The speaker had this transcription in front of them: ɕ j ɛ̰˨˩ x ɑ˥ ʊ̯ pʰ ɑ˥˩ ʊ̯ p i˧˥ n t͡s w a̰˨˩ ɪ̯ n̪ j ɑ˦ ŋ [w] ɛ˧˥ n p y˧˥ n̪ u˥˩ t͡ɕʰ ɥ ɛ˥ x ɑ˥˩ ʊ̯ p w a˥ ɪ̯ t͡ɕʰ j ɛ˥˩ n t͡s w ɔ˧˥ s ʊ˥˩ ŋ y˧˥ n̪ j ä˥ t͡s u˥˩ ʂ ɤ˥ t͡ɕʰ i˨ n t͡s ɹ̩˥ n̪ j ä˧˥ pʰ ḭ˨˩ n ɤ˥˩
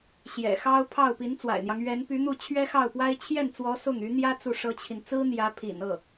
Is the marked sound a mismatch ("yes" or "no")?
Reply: yes